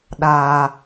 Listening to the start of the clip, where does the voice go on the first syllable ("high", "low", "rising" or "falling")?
high